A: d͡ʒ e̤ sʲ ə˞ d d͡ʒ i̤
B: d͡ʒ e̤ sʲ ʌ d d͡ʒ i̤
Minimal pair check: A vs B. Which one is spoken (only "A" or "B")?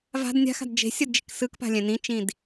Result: B